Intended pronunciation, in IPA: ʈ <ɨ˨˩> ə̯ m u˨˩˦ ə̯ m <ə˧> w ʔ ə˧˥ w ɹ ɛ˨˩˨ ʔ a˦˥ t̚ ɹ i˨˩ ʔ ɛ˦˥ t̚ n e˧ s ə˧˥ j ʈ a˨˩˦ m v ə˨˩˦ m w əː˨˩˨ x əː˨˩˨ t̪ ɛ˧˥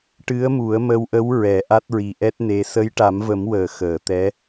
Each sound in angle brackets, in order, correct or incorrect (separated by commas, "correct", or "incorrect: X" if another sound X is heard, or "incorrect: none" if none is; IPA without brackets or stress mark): incorrect: ɨ˧˥, correct